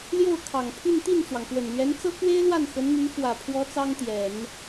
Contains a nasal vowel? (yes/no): no